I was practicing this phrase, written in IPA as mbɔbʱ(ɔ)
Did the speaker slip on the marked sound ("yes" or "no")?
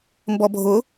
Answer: yes